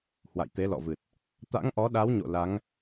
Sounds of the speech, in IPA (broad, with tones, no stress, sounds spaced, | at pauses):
h w a̰˧˨ j t̪ e˨˦ l ɔ̰˧˨ v ɨ˨˩ t̚ | t̪ a̰˧˥ ŋ ʔ ɔ˨˦ ɗ a˨˦ w ɲ o̰˧˨ l a˨˦ ŋ